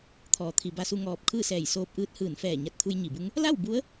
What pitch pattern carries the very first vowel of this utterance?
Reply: low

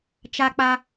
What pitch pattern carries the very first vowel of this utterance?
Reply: high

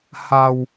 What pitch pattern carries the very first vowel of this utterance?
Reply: low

